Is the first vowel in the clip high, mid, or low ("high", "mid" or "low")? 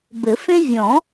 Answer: mid